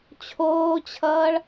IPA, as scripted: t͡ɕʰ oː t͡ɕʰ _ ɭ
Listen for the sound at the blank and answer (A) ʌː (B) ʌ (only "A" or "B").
A